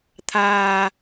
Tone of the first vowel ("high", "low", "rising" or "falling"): low